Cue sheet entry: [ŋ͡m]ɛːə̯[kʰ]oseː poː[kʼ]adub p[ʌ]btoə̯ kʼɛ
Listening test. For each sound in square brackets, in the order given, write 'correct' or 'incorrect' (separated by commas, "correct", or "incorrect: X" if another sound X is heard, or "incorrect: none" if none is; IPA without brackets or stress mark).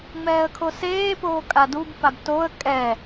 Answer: correct, correct, correct, incorrect: a